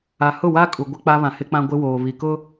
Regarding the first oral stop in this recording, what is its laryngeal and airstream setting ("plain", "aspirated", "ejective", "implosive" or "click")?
ejective